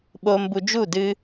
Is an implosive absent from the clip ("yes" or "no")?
no